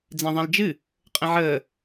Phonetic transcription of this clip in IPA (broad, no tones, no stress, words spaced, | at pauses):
d͡zɛ̃ðˤɛ̃ld͡ʒɨ | qʼə̃ʕəː